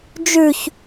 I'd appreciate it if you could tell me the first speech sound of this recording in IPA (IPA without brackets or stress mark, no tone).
d͡ʒ